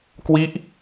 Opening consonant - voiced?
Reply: no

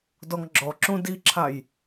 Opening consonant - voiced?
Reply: yes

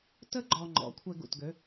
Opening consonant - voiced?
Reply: no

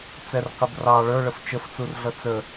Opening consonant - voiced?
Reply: no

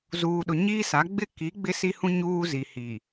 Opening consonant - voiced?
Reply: yes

